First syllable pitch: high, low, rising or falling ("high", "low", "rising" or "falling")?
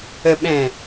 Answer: low